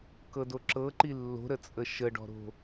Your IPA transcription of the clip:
k ɤ d o ǁ ɤ ǃ i lː o̤ ɾ ə t͡sʼ ə ʃ ə ɖ ɔ̤ ɾ o̤

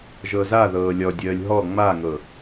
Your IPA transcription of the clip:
ʒ ɤ z a ð ɤː lʲ ɔ dʲ əː lʲ ɦ ɔ ŋ͡m a ŋ ɤ

